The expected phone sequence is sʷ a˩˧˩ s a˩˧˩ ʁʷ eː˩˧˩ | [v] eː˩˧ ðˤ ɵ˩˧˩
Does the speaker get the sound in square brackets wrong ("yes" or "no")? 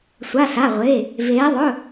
no